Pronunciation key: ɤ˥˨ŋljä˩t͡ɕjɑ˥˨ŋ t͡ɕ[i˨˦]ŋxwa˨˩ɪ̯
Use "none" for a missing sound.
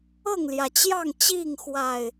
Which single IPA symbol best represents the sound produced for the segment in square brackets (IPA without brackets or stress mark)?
i˥˨